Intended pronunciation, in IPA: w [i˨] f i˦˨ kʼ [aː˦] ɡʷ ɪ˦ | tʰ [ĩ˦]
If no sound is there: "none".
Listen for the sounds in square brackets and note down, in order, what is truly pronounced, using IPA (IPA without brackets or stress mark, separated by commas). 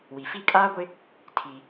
i˨, aː˦, i˦